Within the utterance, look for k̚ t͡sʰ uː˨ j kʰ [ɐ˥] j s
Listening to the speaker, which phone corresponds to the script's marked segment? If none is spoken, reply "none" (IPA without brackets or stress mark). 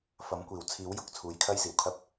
ɐ˥